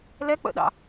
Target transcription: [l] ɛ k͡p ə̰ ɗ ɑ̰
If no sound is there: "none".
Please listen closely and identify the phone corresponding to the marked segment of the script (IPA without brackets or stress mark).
l